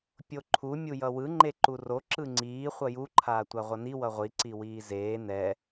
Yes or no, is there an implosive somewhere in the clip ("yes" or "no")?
no